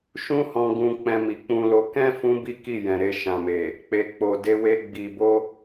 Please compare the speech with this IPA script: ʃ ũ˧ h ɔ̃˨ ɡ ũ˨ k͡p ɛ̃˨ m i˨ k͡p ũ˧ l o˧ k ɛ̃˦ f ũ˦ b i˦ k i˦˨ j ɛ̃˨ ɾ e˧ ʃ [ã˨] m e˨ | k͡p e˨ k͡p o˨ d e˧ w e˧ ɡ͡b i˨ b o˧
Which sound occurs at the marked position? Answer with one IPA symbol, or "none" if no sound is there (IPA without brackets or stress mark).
ã˨